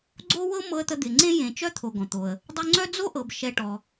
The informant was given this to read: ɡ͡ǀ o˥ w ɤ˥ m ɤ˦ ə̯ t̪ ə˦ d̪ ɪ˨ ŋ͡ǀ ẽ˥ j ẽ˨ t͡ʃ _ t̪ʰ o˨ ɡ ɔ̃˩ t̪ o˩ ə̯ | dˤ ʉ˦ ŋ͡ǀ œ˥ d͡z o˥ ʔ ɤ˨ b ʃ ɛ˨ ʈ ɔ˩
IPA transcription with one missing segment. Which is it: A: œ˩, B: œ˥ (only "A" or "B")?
B